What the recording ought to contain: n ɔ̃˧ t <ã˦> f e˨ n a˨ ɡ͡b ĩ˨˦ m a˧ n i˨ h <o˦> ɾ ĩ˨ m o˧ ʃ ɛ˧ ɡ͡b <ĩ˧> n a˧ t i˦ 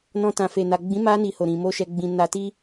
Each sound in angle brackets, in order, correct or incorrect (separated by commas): incorrect, incorrect, correct